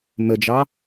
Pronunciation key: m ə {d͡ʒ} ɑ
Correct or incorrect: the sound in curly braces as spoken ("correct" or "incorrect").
correct